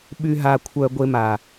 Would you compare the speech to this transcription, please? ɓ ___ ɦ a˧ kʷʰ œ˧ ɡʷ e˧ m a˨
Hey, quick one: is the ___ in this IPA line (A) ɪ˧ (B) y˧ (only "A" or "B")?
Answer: B